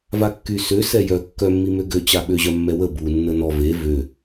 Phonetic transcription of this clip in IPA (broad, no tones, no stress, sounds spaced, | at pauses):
v a kː y s ø s ɛ j œ kː œ mː i m ø ɡ ø t͡ɕ a ɓ ø ʑ œ mː ɛ w ə b u nː ə n ɔ v e v ø